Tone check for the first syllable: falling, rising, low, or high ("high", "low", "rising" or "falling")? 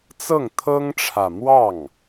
falling